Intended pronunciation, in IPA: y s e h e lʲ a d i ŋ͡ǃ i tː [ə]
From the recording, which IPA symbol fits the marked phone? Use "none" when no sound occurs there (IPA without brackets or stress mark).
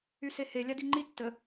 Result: ə